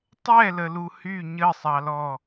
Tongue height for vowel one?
mid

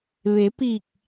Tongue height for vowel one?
mid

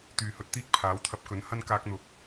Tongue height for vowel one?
high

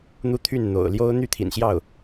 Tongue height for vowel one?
high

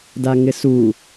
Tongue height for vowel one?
low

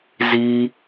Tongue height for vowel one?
high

